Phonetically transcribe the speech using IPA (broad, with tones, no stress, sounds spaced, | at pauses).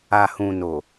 a˨ h ũ˨ n o˨